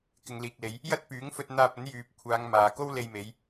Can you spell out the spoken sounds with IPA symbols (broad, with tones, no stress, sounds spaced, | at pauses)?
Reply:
k ɪ˨ ŋ l iː˨ k̚ l e˨˧ j | j ɐ˥ t̚ p yː˨˥ ŋ f ɵ˧ t̚ n̪ aː˧ p̚ ɐ˨˥ n j yː˨ p̚ kʷʰ aː˨˧ ŋ m aː˨ k o˥ w l e˧ j m e˨˧ j